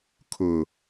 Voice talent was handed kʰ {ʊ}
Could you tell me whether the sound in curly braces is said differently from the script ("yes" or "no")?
no